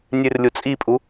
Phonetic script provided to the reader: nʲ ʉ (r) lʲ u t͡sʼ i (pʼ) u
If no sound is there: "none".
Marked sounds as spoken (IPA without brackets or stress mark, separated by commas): r, pʼ